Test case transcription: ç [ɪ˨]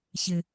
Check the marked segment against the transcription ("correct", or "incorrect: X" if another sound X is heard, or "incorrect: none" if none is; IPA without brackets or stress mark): correct